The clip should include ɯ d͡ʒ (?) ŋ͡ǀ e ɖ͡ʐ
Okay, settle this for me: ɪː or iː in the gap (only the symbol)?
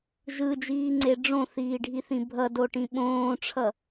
iː